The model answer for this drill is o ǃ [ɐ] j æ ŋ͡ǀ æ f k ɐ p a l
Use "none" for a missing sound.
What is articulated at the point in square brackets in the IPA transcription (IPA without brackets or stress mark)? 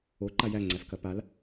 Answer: a